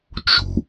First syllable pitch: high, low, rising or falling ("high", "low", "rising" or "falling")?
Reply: low